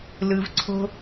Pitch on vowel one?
low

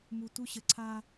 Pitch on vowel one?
low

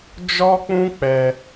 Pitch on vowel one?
high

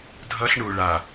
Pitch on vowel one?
high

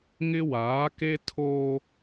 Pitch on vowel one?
high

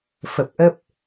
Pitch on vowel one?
low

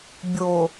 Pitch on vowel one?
low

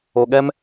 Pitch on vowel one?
low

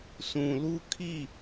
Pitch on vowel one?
low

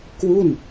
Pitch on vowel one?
falling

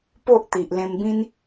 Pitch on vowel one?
high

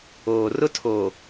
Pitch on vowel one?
low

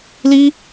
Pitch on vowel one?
high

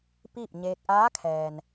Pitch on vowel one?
falling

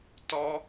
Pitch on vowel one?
high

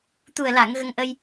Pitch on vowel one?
low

